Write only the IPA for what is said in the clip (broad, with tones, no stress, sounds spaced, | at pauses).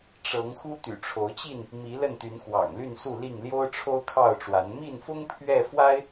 ʈ͡ʂ ɤ˨˦ ŋ x u˦ t̪ y̰˨˩ ʈ͡ʂʰ o˨˦ ʊ̯ t͡ɕ i˥˨ n | m i˨˦ l ə˥˨ n t̪ y˨˦ n x w ɑ̰˨˩ ŋ l y˥˨ n s u˥˨ l i˥˨ ŋ l j o˦ ʊ̯ ʈ͡ʂʰ o˦ ʊ̯ kʰ ɑ˥˨ ʊ̯ ʈ͡ʂ w a˨˦ n m i˥˨ n f ʊ˦ ŋ pʰ ɥ ɛ˥˨ f w a˦ ɪ̯